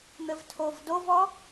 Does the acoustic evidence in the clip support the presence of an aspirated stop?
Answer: yes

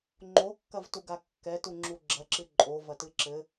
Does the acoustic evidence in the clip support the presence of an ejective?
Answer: yes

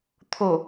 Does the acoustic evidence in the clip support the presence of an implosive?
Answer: no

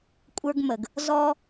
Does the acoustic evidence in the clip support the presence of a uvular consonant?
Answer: no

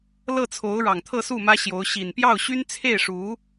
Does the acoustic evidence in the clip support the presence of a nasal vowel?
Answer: no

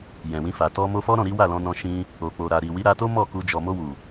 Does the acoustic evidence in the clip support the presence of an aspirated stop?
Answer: no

